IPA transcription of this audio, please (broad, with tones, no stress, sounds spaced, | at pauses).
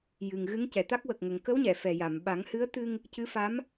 j ɨ˨˩ ŋ ɣ ɨ˧˥ ŋ c ɛ˨˩ t̪ a˦˥ k̚ w ə˨˩ k̚ ŋ ə˨˩ ŋ k ə˧˥ w ɲ ɛ˨˩˨ f ɛ˨˩ j a˨˩˨ m ɓ a˨˩˦ ŋ h ɨ˧˥ ə̯ t̪ ɨ˧ ŋ | c ɨ˧˥ f a˧˥ m